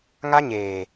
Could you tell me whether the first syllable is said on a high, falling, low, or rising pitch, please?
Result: high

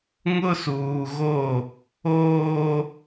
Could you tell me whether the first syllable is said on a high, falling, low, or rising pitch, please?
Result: high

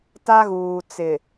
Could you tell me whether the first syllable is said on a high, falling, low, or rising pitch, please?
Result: high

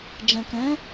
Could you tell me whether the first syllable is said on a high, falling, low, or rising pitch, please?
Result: low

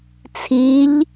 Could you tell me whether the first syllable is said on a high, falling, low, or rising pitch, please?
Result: rising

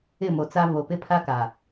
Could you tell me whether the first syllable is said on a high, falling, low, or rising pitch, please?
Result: falling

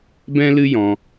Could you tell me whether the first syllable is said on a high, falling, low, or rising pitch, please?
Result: high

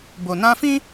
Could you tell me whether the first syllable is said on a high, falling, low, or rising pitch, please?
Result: low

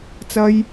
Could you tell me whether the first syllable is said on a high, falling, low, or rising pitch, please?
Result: high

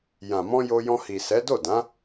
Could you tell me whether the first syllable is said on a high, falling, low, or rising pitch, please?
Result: low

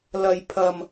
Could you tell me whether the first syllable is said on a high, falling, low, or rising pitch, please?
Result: low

